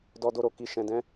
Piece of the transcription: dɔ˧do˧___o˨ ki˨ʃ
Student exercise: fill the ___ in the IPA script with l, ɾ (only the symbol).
ɾ